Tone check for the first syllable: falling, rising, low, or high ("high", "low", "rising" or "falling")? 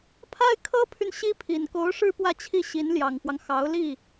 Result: high